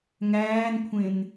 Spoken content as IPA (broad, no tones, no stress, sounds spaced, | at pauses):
ŋ æː n kʷʰ ẽ n